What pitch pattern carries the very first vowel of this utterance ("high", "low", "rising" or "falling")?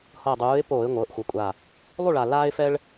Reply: low